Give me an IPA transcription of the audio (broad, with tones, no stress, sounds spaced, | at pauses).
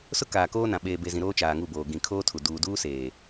s ʊ˦ k aː˨ k oː˦ n ã˨ ɓ eː˨ b e˨ z ĩ˨ ɾ oː˦ t͡ʃ aː˨ ŋ u˦˨ b oː˨ ɡ ĩ˨ kʰ oː˦ tʰ u˨ d uː˨ d uː˦ s eː˨